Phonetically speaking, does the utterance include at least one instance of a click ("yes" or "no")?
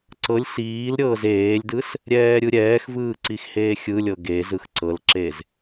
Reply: yes